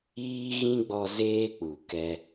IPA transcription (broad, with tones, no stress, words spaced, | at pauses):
iː˦ɣĩ˦ ɡ͡bɔ˦ zeː˦k͡pu˨kɛ˧